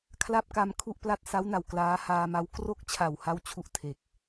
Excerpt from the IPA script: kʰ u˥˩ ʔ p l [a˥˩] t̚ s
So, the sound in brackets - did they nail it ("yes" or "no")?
yes